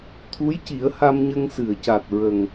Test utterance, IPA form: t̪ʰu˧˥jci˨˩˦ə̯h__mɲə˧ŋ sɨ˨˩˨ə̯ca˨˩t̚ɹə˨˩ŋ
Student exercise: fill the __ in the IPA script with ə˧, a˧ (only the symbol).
a˧